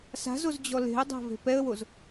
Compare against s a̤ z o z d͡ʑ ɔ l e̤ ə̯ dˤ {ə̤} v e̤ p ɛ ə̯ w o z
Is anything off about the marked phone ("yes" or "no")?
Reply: yes